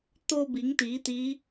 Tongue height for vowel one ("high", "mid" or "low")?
mid